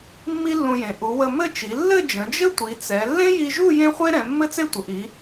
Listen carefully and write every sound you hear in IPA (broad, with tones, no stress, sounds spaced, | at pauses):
mː i˥ lː ũ˧ j ẽ˩˧ ʔ u˩˧ w ə˧ m ɘ˥˧ t͡ʃ i˩˧ lː ɘ˥˧ d͡ʒ ə̃˩˧ d͡ʒ ɘ˥ tʷ i˩˧ t͡s ɛ˩˧ lː ẽ˥ j i˧ ʒ u˥˧ j ẽ˥ χʷ e˥ ɾ ɛ̃˩˧ mː ɘ˥ t͡s e˥˧ tʷ ə˩˧ ʔ i˩˧